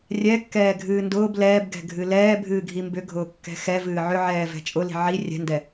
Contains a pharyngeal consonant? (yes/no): yes